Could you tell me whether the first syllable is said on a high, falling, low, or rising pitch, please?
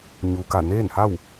low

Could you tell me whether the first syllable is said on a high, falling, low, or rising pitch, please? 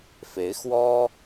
rising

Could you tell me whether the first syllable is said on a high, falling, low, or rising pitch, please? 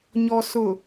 low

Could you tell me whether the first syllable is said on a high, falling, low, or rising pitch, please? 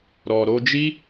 low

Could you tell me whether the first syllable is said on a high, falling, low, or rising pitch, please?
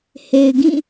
low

